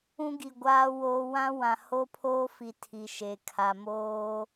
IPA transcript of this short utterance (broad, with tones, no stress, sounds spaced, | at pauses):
ũ˦ ɡ i˨ ɡʷ aː˨ w oː˨ w ã˦ w ã˨ h o˦ pʰ oː˦ f i˨ tʰ i˨ ʃ e˨ kʰ a˨ m oː˦